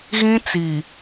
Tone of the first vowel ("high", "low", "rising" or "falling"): high